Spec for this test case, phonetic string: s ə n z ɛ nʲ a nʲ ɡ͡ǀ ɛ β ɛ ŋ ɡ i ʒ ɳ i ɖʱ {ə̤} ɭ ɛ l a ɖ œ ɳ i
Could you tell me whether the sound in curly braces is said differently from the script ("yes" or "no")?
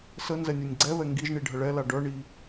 yes